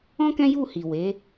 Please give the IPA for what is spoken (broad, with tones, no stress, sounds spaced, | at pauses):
ɔ̃˦ k ɛ̃˦ j u˦˨ h i˨ w e˨˦